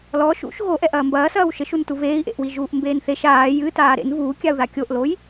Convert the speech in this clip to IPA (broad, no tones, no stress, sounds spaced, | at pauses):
l ɔ ʃ ṵ ʃ ɣ o ʔ ɛ ʔ ɐː m b ɐː s ɐː w ʃ ɘ ʃ u n t u v eː i̯ ʔ ḛ ʔ w i ʒ uː ʔ m b eː n θ e ʃ aː j ɨ t aː ɾ ḛ n v uː kʲ a u̯ ð a kʲ o ʔ l o j